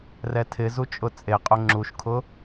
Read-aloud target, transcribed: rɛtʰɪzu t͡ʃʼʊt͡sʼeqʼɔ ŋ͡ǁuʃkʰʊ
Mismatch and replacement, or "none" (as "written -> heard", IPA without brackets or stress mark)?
ɔ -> ʊ